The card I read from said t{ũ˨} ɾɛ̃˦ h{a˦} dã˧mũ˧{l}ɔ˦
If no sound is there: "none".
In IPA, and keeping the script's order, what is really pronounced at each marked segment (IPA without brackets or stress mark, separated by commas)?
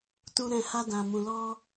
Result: ũ˦, a˦, l